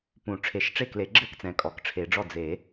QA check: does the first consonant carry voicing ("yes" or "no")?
no